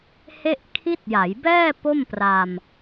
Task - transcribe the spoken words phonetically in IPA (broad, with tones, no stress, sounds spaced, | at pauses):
h e˥˩ ʔ kʰ i˦˥ t̚ j a˩˦ j b ɛː˥˩ p o˥˩ m p r a˧ m